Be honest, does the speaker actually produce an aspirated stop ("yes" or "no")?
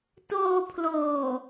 yes